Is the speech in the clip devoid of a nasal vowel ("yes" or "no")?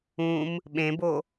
no